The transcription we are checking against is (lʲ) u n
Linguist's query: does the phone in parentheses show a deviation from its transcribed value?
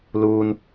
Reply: yes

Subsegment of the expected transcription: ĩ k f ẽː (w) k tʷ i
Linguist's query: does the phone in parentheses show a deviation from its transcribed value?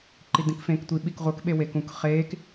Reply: yes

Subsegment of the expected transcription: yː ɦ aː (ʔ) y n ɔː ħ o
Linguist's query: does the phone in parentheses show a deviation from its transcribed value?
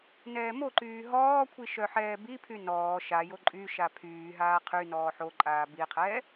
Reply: yes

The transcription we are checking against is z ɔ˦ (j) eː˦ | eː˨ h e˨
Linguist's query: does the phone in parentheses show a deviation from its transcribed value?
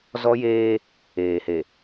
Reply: no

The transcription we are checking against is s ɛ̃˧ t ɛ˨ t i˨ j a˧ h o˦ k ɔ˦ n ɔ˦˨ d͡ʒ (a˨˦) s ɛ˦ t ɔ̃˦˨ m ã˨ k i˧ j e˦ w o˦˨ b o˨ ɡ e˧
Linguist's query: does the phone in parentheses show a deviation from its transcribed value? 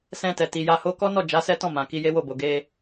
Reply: no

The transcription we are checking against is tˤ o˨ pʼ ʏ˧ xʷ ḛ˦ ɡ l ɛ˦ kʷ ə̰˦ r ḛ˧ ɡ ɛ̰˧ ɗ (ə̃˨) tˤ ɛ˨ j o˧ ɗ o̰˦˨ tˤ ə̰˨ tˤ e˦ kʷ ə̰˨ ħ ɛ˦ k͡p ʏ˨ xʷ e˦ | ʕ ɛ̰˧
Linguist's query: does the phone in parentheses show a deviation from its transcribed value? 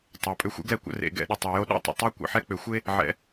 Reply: yes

